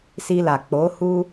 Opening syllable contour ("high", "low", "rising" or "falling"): high